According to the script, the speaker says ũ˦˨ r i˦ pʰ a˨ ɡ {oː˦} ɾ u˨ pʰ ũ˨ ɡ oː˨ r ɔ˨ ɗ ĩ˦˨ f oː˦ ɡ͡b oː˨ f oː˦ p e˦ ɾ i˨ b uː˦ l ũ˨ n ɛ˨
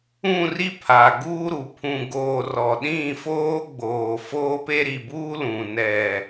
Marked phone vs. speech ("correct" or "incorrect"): incorrect